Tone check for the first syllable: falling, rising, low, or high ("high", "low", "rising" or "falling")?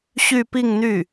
falling